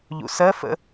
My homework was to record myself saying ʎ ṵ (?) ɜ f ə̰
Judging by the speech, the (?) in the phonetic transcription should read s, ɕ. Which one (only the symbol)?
s